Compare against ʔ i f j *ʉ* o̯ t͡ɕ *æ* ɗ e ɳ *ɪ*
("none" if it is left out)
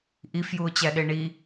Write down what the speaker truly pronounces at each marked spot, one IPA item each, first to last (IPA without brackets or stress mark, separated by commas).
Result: u, æ, i